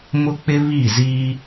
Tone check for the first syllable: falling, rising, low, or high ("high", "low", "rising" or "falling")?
high